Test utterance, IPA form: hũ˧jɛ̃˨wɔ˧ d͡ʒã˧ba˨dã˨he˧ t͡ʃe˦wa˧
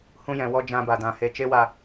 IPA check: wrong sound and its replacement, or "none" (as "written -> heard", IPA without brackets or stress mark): none